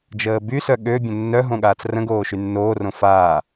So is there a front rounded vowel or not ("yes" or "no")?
yes